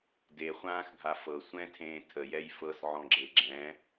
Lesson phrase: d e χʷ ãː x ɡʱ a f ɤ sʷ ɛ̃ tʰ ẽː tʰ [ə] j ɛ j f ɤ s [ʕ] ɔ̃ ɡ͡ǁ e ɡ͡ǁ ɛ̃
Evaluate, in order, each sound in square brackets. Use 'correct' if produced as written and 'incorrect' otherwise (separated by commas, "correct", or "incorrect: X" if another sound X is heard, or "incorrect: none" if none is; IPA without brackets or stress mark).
correct, correct